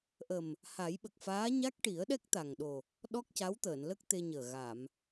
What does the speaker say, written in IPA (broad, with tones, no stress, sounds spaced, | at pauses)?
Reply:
ʔ ə˨˩ m | h a˨˩˦ j ɓ ə˨˩ k̚ f aː˧˥ ɲ a˦˥ k̚ ʈ i˨˩˦ ə̯ ɗ ɛ˦˥ k̚ t̪ a˨˩ ŋ ɗ o˨˩ | ɗ ɔ˦˥ k̚ c a˧˥ w t̪ əː˨˩˨ n l ə˦˥ k̚ t̪ e˧ ɲ əː˨˩ ɣ a˨˩˨ m